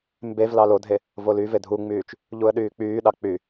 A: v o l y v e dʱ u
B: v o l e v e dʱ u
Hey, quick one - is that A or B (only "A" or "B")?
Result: A